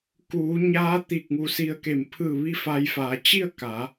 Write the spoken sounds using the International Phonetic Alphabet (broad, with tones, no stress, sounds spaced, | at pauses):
k uː˩˧ ɲ aː˧˥ t̪ iː˧˩ k̚ ŋ u˧˩ s i˧ ə̯ k e˧˩ m pʰ ɯː˧˩ ʋ i˥˨ f a˧ j f aː˩˧ t͡ɕ i˥˨ ə̯ k a˩˧